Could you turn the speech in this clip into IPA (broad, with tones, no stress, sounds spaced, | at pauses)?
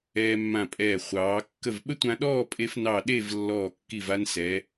ɛː˧ mː ã˧˩ pʼ ɛː˧˩ χʷ ɑː˩˧ kː ə˧˩ v ɓ ə˥ tʷ ã˧ ɗ ɔː˥˧ pʼ e˧ f n ɑ˧˩ ɗ e˥˧ v lː ɔː˧˩ kː i˧˩ v a˧ n s ɛ˩˧